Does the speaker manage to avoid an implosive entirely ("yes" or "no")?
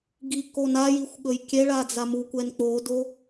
no